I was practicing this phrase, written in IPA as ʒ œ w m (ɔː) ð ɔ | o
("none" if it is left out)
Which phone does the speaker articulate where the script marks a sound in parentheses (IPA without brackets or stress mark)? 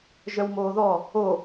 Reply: oː